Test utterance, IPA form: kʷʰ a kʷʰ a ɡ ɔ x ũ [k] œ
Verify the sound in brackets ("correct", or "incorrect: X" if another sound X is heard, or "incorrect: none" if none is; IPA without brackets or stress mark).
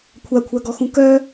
correct